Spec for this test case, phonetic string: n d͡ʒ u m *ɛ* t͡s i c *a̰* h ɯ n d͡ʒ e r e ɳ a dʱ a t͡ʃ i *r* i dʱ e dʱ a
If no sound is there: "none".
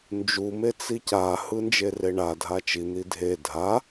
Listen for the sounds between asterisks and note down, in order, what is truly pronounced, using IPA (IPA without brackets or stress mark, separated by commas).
e, a, n̪